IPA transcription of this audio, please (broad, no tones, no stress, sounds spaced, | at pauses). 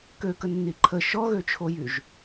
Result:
k ø k ə nː i ǃʰ ə ʃ ɔ ɣ ø t͡ʃʰ o j y ʒ